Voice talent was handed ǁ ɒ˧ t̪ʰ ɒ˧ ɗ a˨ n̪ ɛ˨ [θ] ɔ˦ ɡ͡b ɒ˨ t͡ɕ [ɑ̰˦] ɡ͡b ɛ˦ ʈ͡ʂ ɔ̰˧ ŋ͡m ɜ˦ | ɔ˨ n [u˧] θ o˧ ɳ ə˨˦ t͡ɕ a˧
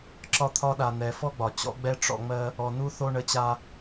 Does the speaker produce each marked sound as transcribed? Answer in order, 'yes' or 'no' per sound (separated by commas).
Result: no, no, yes